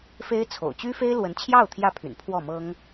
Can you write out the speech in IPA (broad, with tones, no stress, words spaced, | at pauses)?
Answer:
fe˥ɪ̯t͡sʰo̰˨˩ʊ̯ t͡ɕy˥fe˥ɪ̯lwə˧˥nt͡ɕʰjɑ˥˩ʊ̯ t̪ʰjä˥pʰy̰˨˩npʰwɔ˥˩mɤ˥ŋ